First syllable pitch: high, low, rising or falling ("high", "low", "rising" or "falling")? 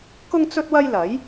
high